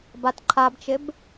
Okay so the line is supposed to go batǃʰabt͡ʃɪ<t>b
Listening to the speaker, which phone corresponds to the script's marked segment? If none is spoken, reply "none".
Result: none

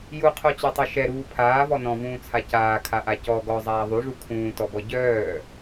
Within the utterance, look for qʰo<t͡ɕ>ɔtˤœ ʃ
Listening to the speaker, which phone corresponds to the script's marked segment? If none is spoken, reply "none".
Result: t͡ɕ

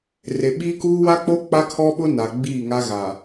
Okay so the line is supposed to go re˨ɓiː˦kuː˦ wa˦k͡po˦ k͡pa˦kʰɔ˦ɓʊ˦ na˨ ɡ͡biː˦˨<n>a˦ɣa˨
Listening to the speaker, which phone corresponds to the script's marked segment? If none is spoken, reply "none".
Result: ŋ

